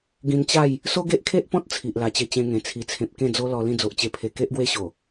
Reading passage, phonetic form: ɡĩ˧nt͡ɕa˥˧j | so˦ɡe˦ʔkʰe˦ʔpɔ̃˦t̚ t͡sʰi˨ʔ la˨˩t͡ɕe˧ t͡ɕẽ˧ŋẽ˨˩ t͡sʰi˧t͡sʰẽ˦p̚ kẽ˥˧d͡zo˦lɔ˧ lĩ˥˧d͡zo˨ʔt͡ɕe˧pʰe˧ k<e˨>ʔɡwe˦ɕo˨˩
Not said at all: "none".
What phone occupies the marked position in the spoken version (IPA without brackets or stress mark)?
e˦